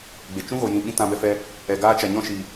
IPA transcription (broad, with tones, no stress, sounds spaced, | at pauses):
ɡ͡b e˨ t͡ʃ ũ˦ ɣ o˨ j ĩ˨ ɓ ĩ˧ t ã˧ b ɛ˧ f ɛ˧ | ɛ˨ ɡ aː˦ t͡ʃ a˨ ɲ ɔ̃˦ ʃ iː˨